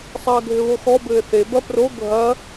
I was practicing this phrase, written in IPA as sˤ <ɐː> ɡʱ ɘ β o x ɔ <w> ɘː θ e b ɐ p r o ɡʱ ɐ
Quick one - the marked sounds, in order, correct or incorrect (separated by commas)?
correct, incorrect